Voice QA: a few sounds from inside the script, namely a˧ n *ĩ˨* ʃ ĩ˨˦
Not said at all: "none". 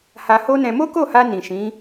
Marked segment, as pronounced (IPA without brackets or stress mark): ĩ˨